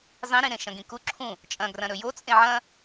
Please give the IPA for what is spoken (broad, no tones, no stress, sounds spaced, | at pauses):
zˤ ĩ ɾ ĩ ɾ ẽ ʃ ɐ̃ ɡ ĩ k u ǁʰ ũ | t͡ʃʼ ɐ̃ ɡ r ɐ̃ ɾ ɵ j o t͡sʼ ẽ ʕ ɐ̃